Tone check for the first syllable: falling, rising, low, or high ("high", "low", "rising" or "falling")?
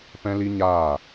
high